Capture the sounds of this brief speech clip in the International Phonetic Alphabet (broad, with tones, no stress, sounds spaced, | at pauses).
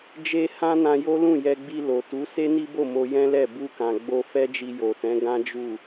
d͡ʒ e˦ h ã˦ n ã˧ j o˦ l ũ˦˨ j ɛ˧ ɡ͡b i˧ l o˨ t u˨˦ s e˦ n i˦ b o˦˨ m o˧ j ɛ̃˦ l ɛ˦˨ b u˧ k ã˨ ɡ͡b o˧ f ɛ˦ d͡ʒ i˧ j o˨ t ɛ̃˨˦ ɡ ã˦ d͡ʒ u˦˨